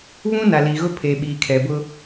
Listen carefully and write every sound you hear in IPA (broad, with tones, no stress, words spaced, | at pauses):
βũ˦na˨ li˨ɣʊ˦pʰeː˨ɓiː˨ kʰɛ˨bʊ˦